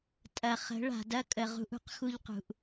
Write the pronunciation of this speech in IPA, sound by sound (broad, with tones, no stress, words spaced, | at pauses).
tʼɐ˨ χə̤˨˦ɭa̤˨dɐ˦ kʼə˨ʁṳ˦ʔ ṳ˦q xu˦ʎqṳ˨ʔ